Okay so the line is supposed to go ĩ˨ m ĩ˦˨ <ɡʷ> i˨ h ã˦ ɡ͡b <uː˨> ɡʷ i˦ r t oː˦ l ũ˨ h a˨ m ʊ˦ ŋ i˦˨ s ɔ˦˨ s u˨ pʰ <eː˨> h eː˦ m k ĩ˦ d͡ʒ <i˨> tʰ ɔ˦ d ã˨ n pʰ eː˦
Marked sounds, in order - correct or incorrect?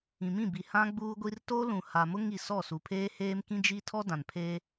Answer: incorrect: b, incorrect: uː˦, incorrect: eː˦, incorrect: i˦

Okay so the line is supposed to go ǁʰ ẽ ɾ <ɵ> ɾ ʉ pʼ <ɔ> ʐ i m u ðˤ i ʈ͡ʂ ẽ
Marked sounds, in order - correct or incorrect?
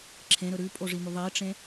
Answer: correct, incorrect: o

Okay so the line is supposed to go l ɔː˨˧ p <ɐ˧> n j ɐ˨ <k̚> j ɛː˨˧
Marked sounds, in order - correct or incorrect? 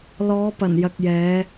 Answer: incorrect: ɐ˨˩, correct

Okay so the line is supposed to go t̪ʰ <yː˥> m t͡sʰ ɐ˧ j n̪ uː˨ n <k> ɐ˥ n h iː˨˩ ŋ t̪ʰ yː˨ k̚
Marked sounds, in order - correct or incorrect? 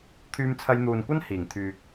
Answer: incorrect: yː˧, incorrect: kʷ

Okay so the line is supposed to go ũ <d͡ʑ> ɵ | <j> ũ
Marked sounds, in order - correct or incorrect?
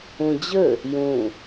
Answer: correct, correct

